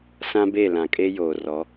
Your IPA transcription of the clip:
sã˦be˦˨lã˨kʼe˦ joː˨rɔ˨˦

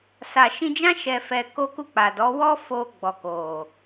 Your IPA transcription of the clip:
sa˨ʃĩ˧d͡ʒã˦ ʃɛ˧fɛ˧ ko˦ku˦˨k͡pa˨dɔ˨˦ wɔ˦ fo˧ ɡ͡bɔ˨ko˨

